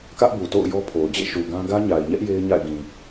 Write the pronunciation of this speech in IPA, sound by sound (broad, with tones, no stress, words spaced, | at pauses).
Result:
kä˦ʔbu˨to̰˦˨ʊ̯ jɔ˦pʰo˨ʊ̯ d͡ʑḛ˦˨ʃu˨ ɡã˦ ɡä˦ɲa˨ɪ̯ɲɛ˦ʔ je˦ɪ̯ɲa̰˦˨ɪ̯ɡĩ˨